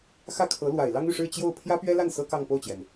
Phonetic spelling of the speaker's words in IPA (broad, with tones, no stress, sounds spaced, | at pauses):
x ä˥˩ kʰ ɤ˧˥ l w a˨˩ ɪ̯ l ɑ˥ ŋ y˥˧ ʂ ɻ̩˥˧ t͡ɕ j o˥˩ ʊ̯ pʰ j ä˥ p ɥ ɛ˥ l a˥˩ n s ɤ˥ k ɑ˥˧ ŋ p o˥˩ ʊ̯ t͡ɕ j ɛ˩ n